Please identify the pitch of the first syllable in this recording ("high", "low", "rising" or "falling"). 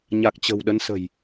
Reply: low